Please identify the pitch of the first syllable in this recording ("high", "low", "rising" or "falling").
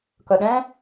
low